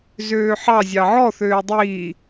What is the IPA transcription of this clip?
z øː ħ ɑ zʲ ɑ ʕ ɔ θ øː dˤ iː

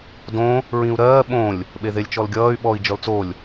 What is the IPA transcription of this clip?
d õ | ɹ ĩ u̯ ɾ ɜː ɓ õ lʲ | ɓ e ð e lʲ t͡ʃ ɔ l ɡʲ ʌː y̯ ɓ ɔ i̯ d͡ʒ ɔ l t͡s o lʲ

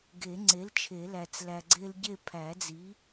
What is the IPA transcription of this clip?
ɡ e˨˩˦ ŋ͡ǀ e˩˥ l t͡ʃʰ e˨˩˦ l æ˨ t͡s l æ˨ ɡ͡ǀ e˦ l ɟ e˥˨ pʰ æ˨˩˦ d͡z i˩˥

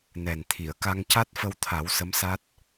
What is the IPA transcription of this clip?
n ɛ˨˩ n t̪ʰ i˨˩˨ ə̯ k a˧ ŋ c a˦˥ t̚ f ə˧ w t̪ʰ a˨˩˦ w s ə˧˥ m s a˦˥ t̚

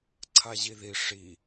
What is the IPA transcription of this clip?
ǀʰ a ʑ i ð i ʂ i

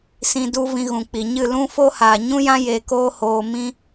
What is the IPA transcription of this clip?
s ĩ˧ d u˦ v ĩ˧ ɣ ũ˨ k͡p i˨ ɲ ɨ˦˨ l ũ˦ f o˦ h aː˨ ɲ ũ˦ j ã˦ j e˨ k oː˦ h oː˧ m ĩ˦

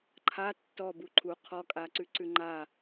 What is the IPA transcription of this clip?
ǃʰ a tː ɔ b u ǃʰ u qʰ ɔ kʼ a ǀ ʉ ǀ ʉ ŋ͡ǃ a

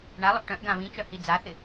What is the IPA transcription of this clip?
ɳ a lˠ ʊ ʔ ʈ œ̃ ʔ ɡ ã β ĩ t͡ʃ œ h i d͡z a θ ɪ

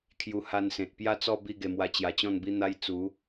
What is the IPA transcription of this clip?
kʰ j u˧ h a˧ n s ẽ˨ t̚ p j a˥˧ t͡s ɔ˥˧ b i˥˧ ɡ e˧ m w a˧ t͡ɕ j a˧ t͡ɕ ɔ̃˥˧ n b i˦ n̪ a˦ j t͡s u˨˦

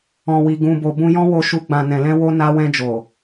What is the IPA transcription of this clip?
ɔ̃˨ w i˨ ɡ ũ˧ b o˧ b ũ˧ j ɔ̃˦ w o˧ ʃ u˧ ɡ͡b ã˨ n ɛ̃˨ l ɛ̃˧ w o˧ n a˧ w ɛ̃˧ d͡ʒ o˨

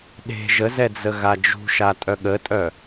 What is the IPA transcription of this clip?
ɗ e̤ ʒ ə z ɛ d͡z ə ɣ a d͡ʒ ṳ ʃ a tʼ œ ɠ ə tʼ œ

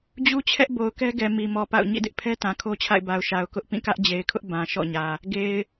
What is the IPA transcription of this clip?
d͡ʑ u˦ t͡ɕʰ ɛ˦ ʔ b o˨ ʊ̯ k ɛ˦ ɡ ɛ˨ m i˨ m ɔ˨ p a̰˦˨ ʊ̯ ɲ ḭ˦˨ d ɪ˦ ʔ pʰ ɛ˦ t ã˨ kʰ o˦ t͡ɕʰ a̰˦˨ ɪ̯ b a˨ ʊ̯ ʃ a˨ ʊ̯ k ʊ˦ ʔ p ĩ˦˨ k ä˦ ʔ d͡ʑ e˨ ɪ̯ kʰ ʊ˦ ʔ b ã˨ ʃ ɔ̰˦˨ ɲ ä˨ | ɡ e˨ ɪ̯

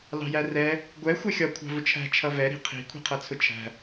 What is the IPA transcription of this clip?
l ɑ̤ j æ r ɛ | ɡʷ ɛ xʷ æ xʲ ɒ kʷʰ ɑ̤ v ʊ t͡ʃʰ æ̤ t͡ʃʰ ʌ v ɛ ɾ i̤ qʰ i̤ kʷʰ i̤ qʰ ʌ t͡sʰ ʊ t͡ʃʰ æ̤

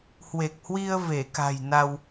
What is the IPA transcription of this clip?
h w e˨˩ k̚ h w i˧ ə̯ v e˧˩ k a̤˨˩ j n a˧ w

